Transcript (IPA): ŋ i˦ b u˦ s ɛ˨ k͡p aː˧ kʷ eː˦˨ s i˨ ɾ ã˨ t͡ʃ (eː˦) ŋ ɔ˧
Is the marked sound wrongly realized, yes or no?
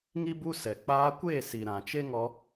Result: yes